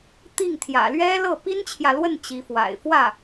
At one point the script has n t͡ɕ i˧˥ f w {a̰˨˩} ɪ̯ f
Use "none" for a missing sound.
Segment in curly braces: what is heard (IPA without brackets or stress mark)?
a̰˨˩